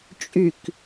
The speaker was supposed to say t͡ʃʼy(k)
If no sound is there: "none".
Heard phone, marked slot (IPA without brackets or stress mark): k